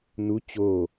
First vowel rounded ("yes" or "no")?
yes